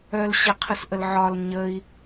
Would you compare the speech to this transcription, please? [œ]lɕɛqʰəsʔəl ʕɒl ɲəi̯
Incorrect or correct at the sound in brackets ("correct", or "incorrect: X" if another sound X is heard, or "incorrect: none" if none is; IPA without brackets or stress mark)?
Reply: correct